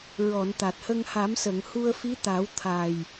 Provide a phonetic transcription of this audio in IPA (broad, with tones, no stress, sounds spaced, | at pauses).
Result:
ɹ ɔ˨˩˨ n t̪ a˨˩ t̚ h ə˧ ŋ h a˨˩˦ m s ə˨˩˨ ŋ h u˧ ə̯ f i˧˥ t̪ a˨˩˦ w t̪ʰ a˨˩ j